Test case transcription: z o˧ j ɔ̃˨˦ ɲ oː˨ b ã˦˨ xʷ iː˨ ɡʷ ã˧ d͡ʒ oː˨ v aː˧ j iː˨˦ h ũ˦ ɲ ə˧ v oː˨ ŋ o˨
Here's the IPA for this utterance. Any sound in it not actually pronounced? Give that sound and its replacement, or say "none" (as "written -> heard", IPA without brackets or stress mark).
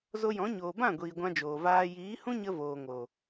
xʷ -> ɡʷ